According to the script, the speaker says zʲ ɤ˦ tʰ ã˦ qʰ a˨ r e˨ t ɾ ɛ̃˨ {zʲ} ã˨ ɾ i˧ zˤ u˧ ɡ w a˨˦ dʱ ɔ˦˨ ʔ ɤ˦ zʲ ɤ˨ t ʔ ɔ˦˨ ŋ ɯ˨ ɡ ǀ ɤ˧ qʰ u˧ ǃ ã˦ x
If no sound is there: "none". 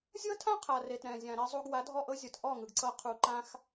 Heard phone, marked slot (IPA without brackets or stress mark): zʲ